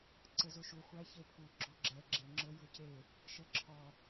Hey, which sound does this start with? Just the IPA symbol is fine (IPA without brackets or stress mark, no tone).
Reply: ǀ